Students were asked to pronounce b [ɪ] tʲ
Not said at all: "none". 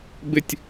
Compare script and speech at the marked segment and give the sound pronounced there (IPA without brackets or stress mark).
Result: ɪ